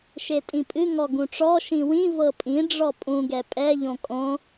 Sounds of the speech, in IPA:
ʃetʼĩpʼɨ ŋɔɡũʈ͡ʂɔ ʃĩwĩ vɤpʼĩ ɖ͡ʐɔpʼũ ɡɛpʼɛ ʎõkʼõ

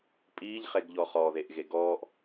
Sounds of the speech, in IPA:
pʼiːʎχeɡʎɔ χɔðeʔɣe ɡɔːʔ

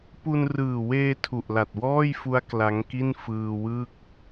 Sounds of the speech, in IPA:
pu˧nrɯː˨˩weː˧ tʰu˨˩ʔla˨˩t̚wɔː˥˩jfu˦˥a̯ kla˦˥ŋki˥˩n fɯː˧wɯ˥˩k̚

